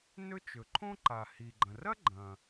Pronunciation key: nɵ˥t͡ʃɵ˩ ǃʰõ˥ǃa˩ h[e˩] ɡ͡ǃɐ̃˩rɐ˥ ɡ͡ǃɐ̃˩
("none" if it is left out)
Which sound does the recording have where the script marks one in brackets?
i˩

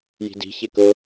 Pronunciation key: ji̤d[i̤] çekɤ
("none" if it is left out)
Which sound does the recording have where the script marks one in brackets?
i̤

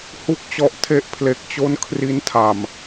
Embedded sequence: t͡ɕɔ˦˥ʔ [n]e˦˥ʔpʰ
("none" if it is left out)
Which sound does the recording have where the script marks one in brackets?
tʰ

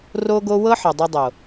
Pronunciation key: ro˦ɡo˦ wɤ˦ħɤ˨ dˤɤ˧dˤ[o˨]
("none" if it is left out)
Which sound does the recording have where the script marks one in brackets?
o˨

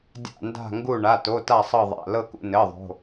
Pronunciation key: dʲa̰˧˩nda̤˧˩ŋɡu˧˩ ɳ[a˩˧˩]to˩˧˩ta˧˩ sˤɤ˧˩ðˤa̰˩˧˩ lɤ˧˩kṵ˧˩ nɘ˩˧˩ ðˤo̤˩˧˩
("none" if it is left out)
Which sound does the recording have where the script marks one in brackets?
a˩˧˩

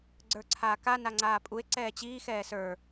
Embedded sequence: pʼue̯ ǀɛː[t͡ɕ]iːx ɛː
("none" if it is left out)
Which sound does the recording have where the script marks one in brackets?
t͡ɕ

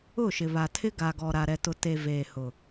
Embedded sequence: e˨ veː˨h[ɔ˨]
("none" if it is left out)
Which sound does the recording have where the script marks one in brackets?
ʊ˨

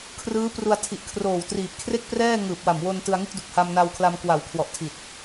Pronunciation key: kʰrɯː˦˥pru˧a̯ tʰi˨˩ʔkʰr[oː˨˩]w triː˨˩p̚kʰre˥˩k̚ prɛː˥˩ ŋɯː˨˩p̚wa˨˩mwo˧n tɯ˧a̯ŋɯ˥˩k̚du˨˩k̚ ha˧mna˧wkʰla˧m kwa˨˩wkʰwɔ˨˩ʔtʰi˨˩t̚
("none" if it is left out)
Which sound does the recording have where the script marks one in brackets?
oː˨˩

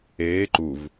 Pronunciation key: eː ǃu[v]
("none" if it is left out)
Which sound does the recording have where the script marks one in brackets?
v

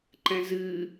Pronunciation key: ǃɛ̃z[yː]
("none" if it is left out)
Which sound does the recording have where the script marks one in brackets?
ɨː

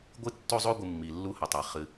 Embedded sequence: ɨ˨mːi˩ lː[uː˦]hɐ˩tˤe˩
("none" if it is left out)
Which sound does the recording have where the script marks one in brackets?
u˦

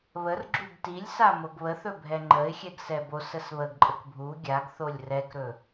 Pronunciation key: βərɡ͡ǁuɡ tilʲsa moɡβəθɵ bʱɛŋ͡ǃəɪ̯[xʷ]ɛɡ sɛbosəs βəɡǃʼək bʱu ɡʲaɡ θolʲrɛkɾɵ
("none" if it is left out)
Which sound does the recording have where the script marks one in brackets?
xʲ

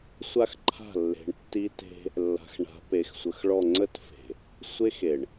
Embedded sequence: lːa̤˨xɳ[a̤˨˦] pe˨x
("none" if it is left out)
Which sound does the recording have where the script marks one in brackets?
a̤˨˦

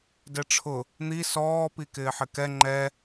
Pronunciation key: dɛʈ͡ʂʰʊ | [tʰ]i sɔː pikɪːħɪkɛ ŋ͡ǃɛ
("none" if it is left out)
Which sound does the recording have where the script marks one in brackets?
n̪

